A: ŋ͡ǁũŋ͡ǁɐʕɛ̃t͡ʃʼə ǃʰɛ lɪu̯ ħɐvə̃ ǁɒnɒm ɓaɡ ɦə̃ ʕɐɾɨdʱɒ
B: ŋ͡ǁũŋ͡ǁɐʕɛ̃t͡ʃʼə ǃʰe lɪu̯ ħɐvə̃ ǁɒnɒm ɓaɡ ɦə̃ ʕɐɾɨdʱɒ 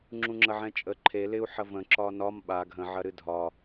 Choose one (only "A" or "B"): B